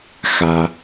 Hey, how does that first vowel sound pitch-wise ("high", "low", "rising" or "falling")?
low